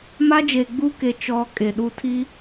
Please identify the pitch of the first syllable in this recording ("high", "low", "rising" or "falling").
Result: high